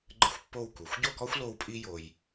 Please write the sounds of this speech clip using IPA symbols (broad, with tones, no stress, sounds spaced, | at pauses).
ɡ͡ǃ ɘ˥ xʷ pː o˥˧ w k u˩˧ xʷ ɟ o˥˧ k ɔ˥ xʷ l o˥ w pʼ i˥ j o˧ j